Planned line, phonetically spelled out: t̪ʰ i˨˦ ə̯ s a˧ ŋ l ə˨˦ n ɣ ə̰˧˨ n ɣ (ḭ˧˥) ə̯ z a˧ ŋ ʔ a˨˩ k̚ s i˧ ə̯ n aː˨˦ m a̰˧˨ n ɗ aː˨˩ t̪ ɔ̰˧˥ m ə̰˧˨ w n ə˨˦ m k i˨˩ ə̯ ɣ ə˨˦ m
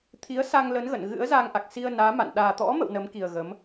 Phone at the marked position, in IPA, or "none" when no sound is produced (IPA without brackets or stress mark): ɨ̰˧˥